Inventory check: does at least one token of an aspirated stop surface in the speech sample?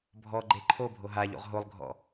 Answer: yes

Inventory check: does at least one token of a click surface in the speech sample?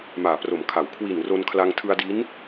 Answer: no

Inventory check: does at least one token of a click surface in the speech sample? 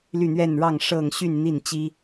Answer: no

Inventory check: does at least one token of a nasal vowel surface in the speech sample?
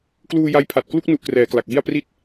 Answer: no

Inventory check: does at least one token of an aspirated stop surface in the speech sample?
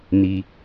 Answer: no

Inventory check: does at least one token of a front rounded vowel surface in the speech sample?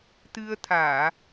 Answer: no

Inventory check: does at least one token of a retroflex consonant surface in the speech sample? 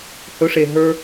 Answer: yes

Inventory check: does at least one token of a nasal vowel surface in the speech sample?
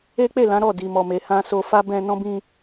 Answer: yes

